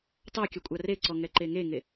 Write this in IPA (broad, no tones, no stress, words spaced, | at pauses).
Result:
tˤakʲa kʷʼareǀɔ ŋɛǃeŋeŋe